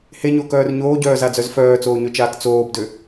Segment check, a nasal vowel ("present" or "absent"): absent